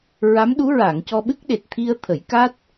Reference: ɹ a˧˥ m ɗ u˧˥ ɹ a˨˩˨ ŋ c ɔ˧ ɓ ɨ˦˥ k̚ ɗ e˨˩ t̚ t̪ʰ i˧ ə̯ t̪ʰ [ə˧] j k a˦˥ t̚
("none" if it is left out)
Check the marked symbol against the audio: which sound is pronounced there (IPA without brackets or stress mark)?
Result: ə˨˩˦